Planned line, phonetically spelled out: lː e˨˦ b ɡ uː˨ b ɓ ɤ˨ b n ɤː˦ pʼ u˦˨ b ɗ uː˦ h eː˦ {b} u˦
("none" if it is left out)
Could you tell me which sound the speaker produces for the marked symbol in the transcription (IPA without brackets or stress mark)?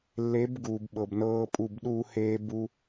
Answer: b